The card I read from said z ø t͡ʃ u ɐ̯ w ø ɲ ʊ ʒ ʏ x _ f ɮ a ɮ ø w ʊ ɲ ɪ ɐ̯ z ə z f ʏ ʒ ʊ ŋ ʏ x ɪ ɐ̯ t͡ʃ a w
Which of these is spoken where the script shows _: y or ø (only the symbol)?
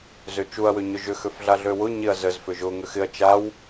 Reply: ø